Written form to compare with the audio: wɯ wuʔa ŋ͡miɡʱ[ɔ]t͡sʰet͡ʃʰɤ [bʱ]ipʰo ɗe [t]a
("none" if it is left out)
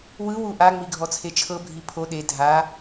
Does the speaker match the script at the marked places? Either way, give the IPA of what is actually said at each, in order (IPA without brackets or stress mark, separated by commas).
ɔ, bʱ, dʱ